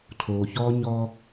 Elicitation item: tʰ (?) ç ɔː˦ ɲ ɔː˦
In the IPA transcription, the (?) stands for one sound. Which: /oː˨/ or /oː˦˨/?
oː˨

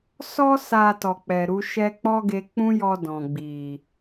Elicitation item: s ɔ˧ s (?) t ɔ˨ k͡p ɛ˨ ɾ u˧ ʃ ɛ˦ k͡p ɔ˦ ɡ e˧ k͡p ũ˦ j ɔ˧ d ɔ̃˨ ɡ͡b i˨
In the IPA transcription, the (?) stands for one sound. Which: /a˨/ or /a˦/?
a˨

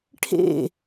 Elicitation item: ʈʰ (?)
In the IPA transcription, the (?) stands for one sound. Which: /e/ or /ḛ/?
ḛ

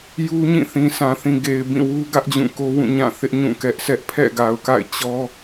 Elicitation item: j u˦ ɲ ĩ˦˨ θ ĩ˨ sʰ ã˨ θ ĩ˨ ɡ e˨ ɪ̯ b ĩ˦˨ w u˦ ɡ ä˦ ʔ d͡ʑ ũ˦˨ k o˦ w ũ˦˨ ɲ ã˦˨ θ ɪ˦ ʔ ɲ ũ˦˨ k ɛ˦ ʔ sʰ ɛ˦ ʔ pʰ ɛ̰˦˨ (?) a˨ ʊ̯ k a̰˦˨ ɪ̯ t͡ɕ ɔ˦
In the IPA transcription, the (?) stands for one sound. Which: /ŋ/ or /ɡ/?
ɡ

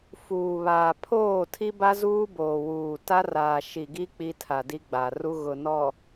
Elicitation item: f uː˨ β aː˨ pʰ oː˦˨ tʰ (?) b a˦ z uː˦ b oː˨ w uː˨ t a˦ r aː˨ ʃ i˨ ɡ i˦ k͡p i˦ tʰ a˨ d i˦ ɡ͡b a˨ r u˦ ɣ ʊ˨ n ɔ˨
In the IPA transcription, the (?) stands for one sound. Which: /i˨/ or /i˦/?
i˦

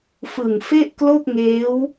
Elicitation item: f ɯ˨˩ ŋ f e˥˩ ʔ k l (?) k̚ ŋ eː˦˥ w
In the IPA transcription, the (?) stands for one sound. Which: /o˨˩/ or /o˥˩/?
o˥˩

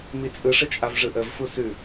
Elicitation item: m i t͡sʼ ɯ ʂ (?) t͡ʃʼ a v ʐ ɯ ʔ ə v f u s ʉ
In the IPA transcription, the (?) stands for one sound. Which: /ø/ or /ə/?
ə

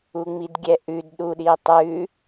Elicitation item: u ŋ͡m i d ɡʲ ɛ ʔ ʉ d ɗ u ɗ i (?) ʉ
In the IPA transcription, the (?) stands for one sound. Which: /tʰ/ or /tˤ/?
tˤ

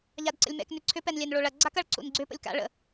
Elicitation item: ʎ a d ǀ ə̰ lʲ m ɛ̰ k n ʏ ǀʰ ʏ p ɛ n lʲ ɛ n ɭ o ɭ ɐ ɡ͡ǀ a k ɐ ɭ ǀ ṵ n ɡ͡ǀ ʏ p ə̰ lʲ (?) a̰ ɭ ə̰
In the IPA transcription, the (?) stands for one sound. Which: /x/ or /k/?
k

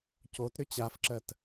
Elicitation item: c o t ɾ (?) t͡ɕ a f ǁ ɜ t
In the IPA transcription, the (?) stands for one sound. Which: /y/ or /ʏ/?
ʏ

